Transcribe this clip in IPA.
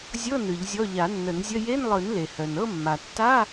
zʲ ɤ˧˥˧ n ɯ˨˩˦ ʎ zʲ ɔ˧˥˧ ʎ a˨˩˦ nː ə˨˩˦ n zʲ ə˧˥˧ j e˧˥˧ n lˠ ɯ˨˩˦ n l e˩ h œ˩ n ɤ˥˧ mː a˩ tː a˧˥˧

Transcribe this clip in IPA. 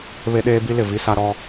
β e˦ ɗ eː˦ b i˦ l ɪ˨ v i˦ s a˦ ɾ ɔ˦

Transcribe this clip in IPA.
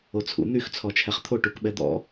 o t͡sʰ ṵ n̪ y x t͡sʰ ɔ t͡ʃʰ ɛ χ t̪ʰ o ʈ u k ɓ ɛ d̪ ɔ̰

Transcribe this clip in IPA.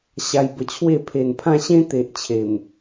ɕ a˧ j b ə˧ t͡ɕʰ w e˥˧ pʰ e˨˩ n pʰ ã˥˧ ɕ ẽ˦ t̪ e˨ ʔ t͡ɕʰ e˨˩ m

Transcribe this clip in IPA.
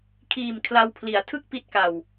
kʰ iː˨˩ m kʰ l a˧ w pʰ l i˩˦ a̯ tʰ ɯ˥˩ k̚ p i˦˥ t̚ k a˨˩ w

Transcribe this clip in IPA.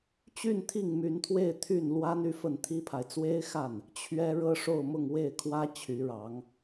t͡ɕ y˥˧ n t̪ʰ i˥˩ ŋ m y˧˥ n t̪ʰ w e˥˧ ɪ̯ t̪ʰ y˥˩ n l w a˥ n y˥ f ə˥˩ n t̪ʰ i˥ pʰ a˨ ɪ̯ t͡s w e˥ ɪ̯ x a˥˩ n | t͡ɕʰ ɥ ɛ˥ ɻ ɤ˥ ʂ o˥˧ ʊ̯ m ʊ˥˧ ŋ w e˥˩ ɪ̯ kʰ w ä˥ t͡ɕʰ y˧˥ ɻ ɑ˧˥ ŋ

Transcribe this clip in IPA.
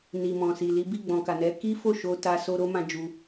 n i˨ m ɔ̃˨ s i˨ l i˨˦ b i˦˨ ɡ͡b ɔ̃˨ k a˨ n ɛ˨˦ k i˦ f o˦˨ ʃ o˧ t a˧ s o˧ ɾ o˦ m ã˧ d͡ʒ u˧

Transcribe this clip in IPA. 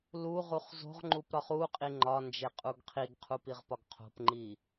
l u ʁ u χ z o̤ ʁ ŋ͡ǃ u p ɾ ɒ χ u qʼ i ŋ͡ǃ ɒ n d͡ʒ e qʼ u ɡ qʰ i ɡ qʰ u p i ʁ p ɒ ɡ qʰ o̤ p ŋ͡ǃ i

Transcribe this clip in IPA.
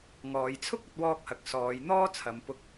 ŋ ɔː˨˧ j t͡sʰ ʊ˥ k̚ ɐ˥ t̚ w ɔː˥ k̚ h ɐ˧ k̚ s ɔː˨˧ j n̪ ɔː˥ t͡sʰ ɐ˨˧ m p ʊ˧ k̚

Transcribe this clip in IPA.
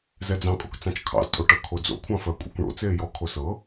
z ɛ d͡z ɑ̃ kʼ o̰ k t͡s ɑ̃ t͡ʃ kʰ ɑ̰ z tʼ o ʈ ɤ kʰ o d͡z o̰ kʷʰ ɑ̃ f ɜ kʷʼ ḛ kʷ ɳ o̰ t͡s eː j ɔ kʰ o s ɤ

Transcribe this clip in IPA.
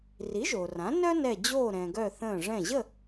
r i˩˥ ʒ oː˩ r ã˩˥ n œ˥ n ɛ˧˩ d͡ʑ oː˥˨ ɾ ɛ̃˩ ɡ œ˧˩ θ ə̃ː˧˩ ʐ ɛ̃˧˩ ʑ ə˥˨

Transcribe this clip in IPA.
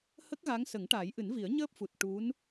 h ə˦˥ k̚ ɣ a˧˥ ŋ s ə˨˩˦ ŋ ʈ aː˨˩˦ j ʔ ɨ˨˩˦ n v i˨˩˦ ə̯ ɲ əː˦˥ p̚ f u˨˩ t̚ ʈ u˧˥ n

